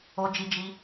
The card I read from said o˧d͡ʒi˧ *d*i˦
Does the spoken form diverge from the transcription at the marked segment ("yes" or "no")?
yes